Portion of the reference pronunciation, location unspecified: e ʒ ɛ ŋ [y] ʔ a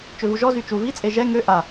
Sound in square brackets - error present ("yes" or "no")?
yes